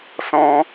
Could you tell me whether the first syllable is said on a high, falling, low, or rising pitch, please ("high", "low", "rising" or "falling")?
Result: high